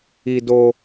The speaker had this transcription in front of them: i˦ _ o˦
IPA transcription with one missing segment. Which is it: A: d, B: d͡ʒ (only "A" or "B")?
A